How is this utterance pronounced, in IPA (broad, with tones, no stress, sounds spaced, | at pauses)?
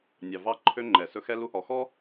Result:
nʲ ɑ˨ v ɑ˦ ǃʰ ø˦ ŋ͡ǃ ɛ˨ s ɵ˦ x ɛ˦ l u˦ h ɔ˨ x ɔ˦